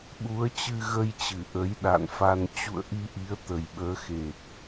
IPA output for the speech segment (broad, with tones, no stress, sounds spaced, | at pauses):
ɓ u˨˦ ə̯ t͡ɕ ɨ˧ ɣ ə˧ j t͡ɕ ɨ˧˩ ʔ ə˨˦ j ɗ a̰˧˨ n f a˧ n t͡ɕ ṵ˧˨ ə̯ ʔ i˧ ʔ i˨˦ ə̯ t̪ ə˨˩ j ɓ əː˨˦ x e˨˩ t̚